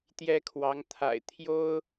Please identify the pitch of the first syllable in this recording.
high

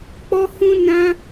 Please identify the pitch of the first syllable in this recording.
high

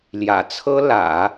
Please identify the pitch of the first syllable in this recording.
low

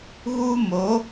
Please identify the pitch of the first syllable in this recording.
high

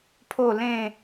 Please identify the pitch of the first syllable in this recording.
falling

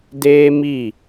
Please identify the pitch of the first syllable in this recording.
high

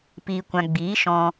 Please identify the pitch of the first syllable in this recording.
low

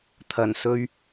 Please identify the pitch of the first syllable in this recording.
low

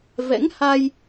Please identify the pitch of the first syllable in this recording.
rising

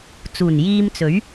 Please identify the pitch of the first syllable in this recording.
low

